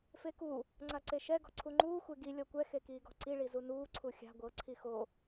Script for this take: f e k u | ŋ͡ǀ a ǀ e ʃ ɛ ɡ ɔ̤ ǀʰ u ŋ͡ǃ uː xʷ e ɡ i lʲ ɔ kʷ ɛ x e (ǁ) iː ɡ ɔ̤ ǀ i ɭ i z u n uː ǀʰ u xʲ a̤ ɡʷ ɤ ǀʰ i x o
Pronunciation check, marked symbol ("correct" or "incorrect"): incorrect